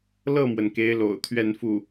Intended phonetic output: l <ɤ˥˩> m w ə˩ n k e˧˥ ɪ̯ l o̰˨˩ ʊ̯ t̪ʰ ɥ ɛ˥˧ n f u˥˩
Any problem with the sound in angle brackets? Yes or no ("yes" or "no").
no